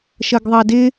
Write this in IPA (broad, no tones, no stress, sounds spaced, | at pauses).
ʃ ʌ ɡ ðˤ ɑ d ɪ